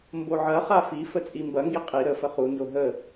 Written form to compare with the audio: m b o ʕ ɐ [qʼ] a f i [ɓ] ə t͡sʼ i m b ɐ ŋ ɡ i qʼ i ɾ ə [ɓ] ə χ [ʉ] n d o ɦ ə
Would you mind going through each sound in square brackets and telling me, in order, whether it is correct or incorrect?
incorrect: χ, incorrect: f, incorrect: f, incorrect: u

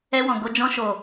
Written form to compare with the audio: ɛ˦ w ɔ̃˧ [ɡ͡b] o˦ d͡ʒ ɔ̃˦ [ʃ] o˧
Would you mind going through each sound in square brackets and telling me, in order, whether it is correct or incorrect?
incorrect: ɡ, correct

